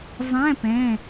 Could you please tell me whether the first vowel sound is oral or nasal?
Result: nasal